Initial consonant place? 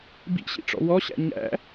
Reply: labial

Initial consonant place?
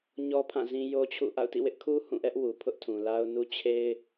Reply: palatal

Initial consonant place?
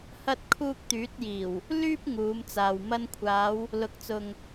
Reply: glottal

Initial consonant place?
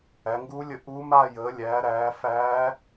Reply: velar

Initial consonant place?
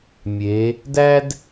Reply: labial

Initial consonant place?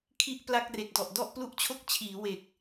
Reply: velar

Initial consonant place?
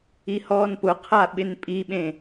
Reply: glottal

